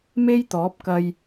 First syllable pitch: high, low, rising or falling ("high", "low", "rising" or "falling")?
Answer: high